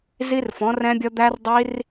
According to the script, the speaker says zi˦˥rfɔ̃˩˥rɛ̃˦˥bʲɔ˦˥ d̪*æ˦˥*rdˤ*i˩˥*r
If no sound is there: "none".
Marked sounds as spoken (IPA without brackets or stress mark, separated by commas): æ˦˥, i˦˥